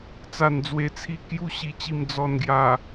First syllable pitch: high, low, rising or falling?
low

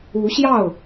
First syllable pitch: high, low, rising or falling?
rising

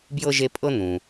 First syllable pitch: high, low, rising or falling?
high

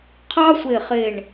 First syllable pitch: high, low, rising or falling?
high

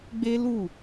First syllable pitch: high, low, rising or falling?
high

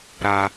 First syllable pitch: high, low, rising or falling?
high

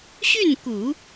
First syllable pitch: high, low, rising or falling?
falling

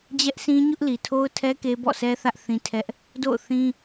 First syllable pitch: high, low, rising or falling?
high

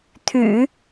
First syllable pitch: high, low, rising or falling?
low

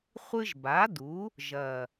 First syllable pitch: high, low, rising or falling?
high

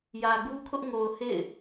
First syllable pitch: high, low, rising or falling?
low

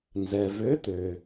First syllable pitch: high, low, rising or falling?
low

